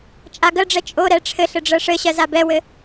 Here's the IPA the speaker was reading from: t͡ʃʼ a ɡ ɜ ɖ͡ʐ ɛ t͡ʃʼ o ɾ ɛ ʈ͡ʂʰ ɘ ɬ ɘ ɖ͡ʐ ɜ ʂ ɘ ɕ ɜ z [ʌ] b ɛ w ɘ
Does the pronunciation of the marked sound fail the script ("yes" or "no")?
yes